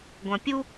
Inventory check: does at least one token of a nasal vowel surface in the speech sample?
yes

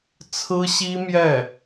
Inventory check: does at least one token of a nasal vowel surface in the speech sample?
no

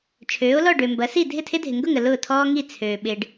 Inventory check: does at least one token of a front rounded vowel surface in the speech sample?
yes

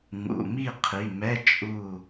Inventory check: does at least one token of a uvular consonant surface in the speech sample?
yes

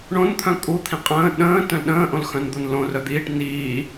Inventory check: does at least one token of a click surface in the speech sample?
no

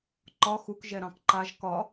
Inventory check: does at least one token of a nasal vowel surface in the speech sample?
yes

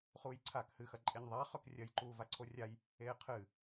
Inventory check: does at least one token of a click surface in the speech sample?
yes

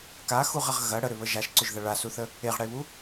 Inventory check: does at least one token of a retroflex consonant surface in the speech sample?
yes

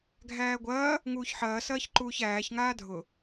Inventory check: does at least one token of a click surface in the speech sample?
yes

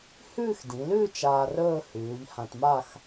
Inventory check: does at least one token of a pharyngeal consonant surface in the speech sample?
no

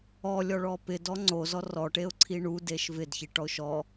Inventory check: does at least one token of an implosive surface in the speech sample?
no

